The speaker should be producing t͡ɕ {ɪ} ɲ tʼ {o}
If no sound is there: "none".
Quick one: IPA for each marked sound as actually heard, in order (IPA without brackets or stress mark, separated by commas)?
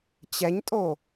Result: ɛ, o